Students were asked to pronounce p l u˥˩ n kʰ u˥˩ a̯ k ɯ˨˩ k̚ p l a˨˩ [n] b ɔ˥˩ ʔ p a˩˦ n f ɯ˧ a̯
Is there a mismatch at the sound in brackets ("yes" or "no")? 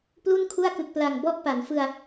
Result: yes